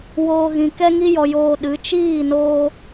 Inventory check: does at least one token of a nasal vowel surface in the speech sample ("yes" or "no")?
yes